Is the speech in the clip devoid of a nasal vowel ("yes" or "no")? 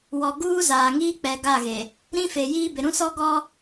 no